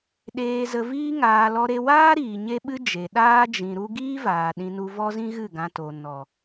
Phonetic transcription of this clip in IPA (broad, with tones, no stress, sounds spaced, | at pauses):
ɗ eː˧ z ə˧ v iː˦ ŋ aː˧ l ɔ˧ ɾ e˧ w aː˦ ɾ iː˨ ɲ e˦ ɓ ɨ˦ d͡ʒ e˨ ɗ aː˦ d͡ʒ ĩ˧ ɾ u˦ ɡ iː˦ v aː˨ ɗ ĩ˧ n u˧ v ɔ˦ z ĩ˦ ɣ ɨ˦˨ ɡ ã˧ t o˨ n ɔ˨